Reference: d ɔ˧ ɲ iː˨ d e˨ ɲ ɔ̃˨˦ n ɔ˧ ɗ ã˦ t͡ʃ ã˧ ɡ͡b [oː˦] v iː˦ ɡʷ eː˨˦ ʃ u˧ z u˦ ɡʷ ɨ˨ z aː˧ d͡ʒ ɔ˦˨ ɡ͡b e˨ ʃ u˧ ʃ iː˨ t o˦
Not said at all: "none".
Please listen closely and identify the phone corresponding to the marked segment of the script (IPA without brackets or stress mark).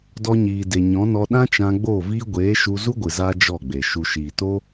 oː˦˨